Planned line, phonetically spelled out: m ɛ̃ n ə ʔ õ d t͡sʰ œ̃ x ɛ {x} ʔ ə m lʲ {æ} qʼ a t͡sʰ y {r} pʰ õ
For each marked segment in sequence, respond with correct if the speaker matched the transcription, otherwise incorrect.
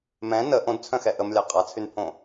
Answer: incorrect, incorrect, incorrect

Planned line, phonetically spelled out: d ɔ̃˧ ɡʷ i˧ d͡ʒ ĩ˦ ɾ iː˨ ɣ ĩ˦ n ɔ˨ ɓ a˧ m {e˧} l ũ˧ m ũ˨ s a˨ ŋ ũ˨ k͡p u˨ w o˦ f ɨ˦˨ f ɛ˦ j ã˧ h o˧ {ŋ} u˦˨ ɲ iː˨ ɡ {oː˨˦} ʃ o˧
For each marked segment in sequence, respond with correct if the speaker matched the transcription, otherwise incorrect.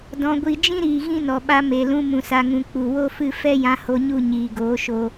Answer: incorrect, incorrect, correct

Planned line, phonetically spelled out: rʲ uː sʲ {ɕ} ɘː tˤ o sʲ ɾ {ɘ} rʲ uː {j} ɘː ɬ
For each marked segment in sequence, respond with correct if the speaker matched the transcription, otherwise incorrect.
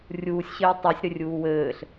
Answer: correct, correct, incorrect

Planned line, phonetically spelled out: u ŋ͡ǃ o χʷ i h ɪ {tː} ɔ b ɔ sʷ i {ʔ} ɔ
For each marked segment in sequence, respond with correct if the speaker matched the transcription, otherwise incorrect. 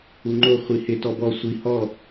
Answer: incorrect, incorrect

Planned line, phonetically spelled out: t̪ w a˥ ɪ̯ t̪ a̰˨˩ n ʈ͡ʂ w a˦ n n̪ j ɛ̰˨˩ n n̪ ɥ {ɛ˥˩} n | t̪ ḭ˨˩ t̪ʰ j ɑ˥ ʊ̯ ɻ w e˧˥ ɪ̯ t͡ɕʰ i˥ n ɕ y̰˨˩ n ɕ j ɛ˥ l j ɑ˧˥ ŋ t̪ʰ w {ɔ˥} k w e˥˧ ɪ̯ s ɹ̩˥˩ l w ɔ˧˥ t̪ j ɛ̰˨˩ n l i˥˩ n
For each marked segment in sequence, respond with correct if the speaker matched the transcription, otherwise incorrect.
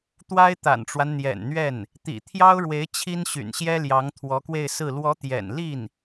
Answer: correct, incorrect

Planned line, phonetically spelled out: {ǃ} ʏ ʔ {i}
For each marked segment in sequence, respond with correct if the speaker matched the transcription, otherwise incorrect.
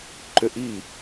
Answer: correct, correct

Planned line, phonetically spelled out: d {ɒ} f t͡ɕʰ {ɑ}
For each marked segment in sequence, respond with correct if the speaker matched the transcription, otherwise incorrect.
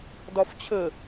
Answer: correct, incorrect

